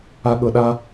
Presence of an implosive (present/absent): present